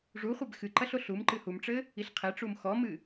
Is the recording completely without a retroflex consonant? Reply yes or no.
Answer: no